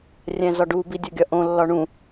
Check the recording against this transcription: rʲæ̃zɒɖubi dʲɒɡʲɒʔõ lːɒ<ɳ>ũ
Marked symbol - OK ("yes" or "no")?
yes